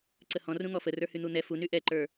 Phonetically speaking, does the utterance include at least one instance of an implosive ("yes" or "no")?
no